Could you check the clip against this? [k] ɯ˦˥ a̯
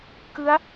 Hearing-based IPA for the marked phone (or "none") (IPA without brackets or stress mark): k